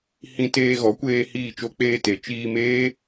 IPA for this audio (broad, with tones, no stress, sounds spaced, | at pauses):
h ĩ˧ t eː˧ ɣ ɔ˨˦ kʷ eː˧ h iː˦˨ t͡ʃ o˦ k͡p eː˧ t e˨ t͡ʃ iː˧ m eː˦